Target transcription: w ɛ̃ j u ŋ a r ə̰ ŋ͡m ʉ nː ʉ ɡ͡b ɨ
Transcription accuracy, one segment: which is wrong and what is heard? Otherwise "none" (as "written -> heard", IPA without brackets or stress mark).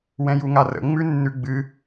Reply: none